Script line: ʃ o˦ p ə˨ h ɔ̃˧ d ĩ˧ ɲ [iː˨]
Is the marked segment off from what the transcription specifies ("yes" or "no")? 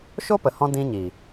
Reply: yes